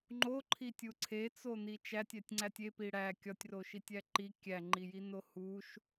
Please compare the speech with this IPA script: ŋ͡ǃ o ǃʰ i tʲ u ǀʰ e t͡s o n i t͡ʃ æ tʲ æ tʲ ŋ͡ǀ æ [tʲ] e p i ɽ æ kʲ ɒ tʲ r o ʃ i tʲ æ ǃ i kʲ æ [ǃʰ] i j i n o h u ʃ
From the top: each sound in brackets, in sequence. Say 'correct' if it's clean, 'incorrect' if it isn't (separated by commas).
correct, incorrect